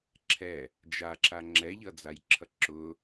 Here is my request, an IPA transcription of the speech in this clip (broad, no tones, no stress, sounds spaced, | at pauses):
ǁʰ ɛ | d͡ʒ a ǁ a ŋ͡ǁ ɛ ʎ ʌ d͡z a j ǁʰ ʌ ǁ ʊ